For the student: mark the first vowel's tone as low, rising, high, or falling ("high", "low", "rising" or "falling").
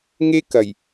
high